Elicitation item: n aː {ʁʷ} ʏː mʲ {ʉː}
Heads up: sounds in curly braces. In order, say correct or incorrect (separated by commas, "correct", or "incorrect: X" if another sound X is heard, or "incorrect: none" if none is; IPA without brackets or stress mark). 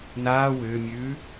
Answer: incorrect: w, correct